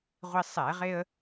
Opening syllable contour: high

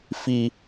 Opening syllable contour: low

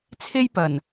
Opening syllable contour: high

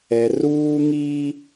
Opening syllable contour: low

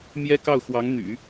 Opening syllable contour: high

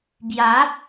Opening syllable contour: rising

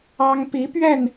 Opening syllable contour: high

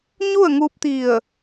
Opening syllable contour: falling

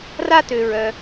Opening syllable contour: high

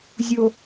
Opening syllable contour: low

